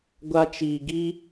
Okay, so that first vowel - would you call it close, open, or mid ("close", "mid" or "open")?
open